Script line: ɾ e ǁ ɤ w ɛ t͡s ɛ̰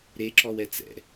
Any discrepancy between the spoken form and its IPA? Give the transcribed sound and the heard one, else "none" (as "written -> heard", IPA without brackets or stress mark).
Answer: ɤ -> ɔ